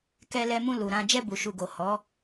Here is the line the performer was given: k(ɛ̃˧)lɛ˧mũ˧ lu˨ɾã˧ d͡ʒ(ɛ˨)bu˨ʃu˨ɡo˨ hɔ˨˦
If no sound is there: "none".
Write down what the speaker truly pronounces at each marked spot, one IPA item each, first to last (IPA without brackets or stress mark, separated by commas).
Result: ɛ˧, ɛ˧